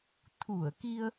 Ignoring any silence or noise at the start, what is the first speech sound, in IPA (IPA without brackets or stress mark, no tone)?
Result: t̪ʰ